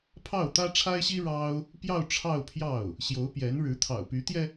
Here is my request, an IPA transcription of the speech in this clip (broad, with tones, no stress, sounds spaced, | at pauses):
pʰ ɑ˥˩ ʊ̯ t̪ ä˥ ʈ͡ʂʰ a˥ ɪ̯ ɕ i˥ ɻ ɑ˥ ʊ̯ | p j ɑ˥˧ ʊ̯ ʈ͡ʂʰ ɑ˥˧ ʊ̯ pʰ j ɑ˥˩ ʊ̯ | ɕ j o˧˥ ʊ̯ p j ɛ˧˥ n ɻ ɻ̩˧˥ t̪ʰ ɑ̰˨˩ ʊ̯ p y˧˥ t̪ j ɛ˧